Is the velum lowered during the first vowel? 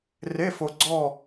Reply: no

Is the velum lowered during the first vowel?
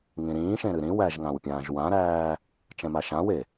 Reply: yes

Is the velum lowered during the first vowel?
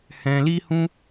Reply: yes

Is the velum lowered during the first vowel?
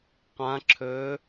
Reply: yes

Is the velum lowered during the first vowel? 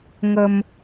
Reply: no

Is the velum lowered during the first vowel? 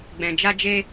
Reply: yes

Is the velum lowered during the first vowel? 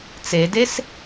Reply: no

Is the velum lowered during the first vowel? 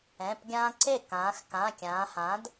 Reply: yes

